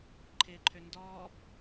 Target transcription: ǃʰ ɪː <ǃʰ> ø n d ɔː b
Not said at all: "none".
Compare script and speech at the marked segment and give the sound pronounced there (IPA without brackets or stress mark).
ǃʰ